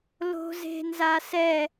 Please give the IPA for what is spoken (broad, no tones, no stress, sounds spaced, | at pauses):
l o̤ z e̤ n z a s ɛ